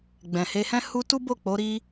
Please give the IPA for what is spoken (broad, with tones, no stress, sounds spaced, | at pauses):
ɡ͡b ɛ̃˨ h e˧ h ɛ̃˦ h u˧ t u˦ b o˦˨ k͡p o˨˦ ɾ i˦